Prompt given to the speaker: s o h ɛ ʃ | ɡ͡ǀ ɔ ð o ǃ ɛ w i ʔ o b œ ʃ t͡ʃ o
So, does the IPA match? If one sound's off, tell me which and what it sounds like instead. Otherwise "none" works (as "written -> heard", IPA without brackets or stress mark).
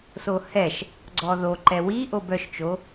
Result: none